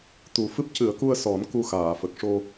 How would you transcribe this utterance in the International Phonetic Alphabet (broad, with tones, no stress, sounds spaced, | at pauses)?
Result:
t̪ u˨˩ f ɨ˦˥ p̚ c ɨ˨˩˦ ə̯ k u˧ ə̯ s ɔ˨˩˦ n k u˧ x aː˨˩˨ f ə˨˩ k̚ ʂ o˧